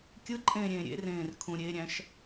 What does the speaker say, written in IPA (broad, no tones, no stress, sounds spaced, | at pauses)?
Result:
kʲ ɯ ǃʼ ẽː ɾʲ ẽː ɾʲ ḛ r ẽː r kʰ ũ ɾʲ e ɾʲ æ̃ ʃ